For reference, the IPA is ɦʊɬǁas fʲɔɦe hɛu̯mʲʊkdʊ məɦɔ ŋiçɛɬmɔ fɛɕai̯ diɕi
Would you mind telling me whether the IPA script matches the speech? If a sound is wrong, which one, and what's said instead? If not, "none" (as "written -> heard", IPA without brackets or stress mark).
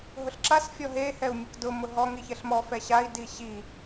ə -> ʊ